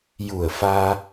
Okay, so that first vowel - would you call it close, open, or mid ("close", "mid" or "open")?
close